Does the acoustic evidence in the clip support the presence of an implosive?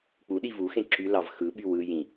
yes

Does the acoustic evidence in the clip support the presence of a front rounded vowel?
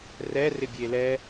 no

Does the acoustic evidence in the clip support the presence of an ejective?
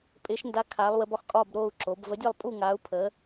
yes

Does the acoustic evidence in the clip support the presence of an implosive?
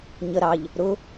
no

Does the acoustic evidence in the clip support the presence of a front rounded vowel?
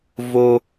no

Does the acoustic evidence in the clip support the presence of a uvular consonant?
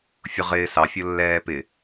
yes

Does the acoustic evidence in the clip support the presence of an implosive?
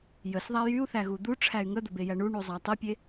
no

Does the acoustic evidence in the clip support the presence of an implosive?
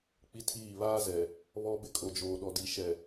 yes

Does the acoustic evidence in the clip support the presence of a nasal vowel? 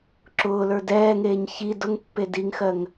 no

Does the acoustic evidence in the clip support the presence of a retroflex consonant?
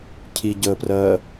no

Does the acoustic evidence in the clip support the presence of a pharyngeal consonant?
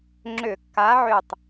yes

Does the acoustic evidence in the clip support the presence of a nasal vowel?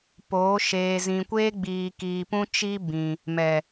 yes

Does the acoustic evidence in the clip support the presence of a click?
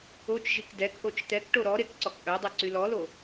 yes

